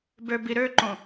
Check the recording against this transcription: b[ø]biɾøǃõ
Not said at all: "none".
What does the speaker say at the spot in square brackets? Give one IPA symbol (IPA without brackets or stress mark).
ø